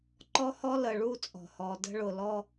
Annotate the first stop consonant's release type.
click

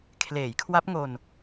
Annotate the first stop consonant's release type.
aspirated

